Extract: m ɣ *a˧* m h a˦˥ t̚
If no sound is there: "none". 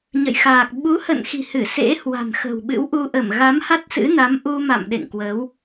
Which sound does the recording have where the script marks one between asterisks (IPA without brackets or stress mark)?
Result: a˨˦